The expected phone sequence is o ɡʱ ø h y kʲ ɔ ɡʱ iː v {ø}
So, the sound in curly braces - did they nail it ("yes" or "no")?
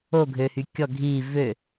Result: yes